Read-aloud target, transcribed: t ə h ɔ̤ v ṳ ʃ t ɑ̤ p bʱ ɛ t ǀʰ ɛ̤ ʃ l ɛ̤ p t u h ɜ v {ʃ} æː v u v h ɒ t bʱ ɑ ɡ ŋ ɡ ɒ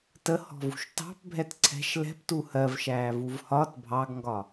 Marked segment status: correct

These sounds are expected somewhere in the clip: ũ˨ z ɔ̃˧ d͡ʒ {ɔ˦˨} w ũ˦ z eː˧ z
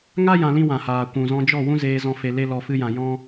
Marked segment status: correct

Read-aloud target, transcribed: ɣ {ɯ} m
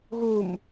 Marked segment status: incorrect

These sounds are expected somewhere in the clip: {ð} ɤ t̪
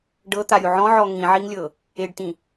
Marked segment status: incorrect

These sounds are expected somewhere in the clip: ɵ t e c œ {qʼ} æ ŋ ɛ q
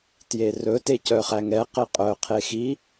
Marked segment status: incorrect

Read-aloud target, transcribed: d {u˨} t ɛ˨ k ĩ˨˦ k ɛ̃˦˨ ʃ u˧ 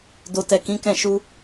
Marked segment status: incorrect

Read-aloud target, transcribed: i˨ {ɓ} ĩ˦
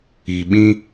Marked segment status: correct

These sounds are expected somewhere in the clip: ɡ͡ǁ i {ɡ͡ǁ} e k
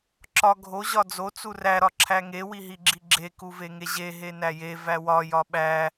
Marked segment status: correct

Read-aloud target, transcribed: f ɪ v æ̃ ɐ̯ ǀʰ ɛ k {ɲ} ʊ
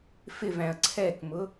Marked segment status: incorrect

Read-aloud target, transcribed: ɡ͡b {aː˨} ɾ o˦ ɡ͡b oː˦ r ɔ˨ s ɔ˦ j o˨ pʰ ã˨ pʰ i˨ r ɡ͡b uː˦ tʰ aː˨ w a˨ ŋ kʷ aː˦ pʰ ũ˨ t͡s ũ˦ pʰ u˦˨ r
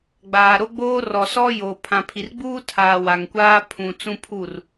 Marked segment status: correct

